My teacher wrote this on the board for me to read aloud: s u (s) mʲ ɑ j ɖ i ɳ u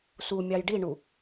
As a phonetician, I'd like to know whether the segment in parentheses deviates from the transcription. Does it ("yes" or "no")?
yes